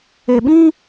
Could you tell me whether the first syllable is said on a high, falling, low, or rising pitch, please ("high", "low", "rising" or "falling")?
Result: low